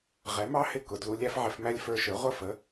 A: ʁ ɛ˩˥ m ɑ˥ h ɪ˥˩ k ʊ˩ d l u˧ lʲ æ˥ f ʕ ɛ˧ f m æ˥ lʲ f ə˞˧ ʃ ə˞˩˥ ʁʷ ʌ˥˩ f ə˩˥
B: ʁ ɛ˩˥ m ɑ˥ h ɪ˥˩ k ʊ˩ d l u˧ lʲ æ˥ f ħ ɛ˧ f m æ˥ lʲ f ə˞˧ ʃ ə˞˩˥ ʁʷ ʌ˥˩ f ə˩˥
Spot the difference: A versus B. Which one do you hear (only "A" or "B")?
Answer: A